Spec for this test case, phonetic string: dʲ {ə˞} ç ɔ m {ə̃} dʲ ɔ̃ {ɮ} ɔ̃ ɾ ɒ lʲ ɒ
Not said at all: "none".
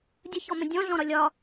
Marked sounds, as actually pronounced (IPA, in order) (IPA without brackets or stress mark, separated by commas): ə, ə̃, ɮ